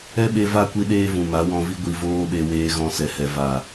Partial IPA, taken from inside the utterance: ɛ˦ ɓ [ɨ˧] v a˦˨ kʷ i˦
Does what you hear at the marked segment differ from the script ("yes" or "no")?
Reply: yes